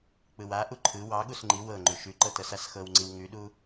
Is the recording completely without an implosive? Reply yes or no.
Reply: no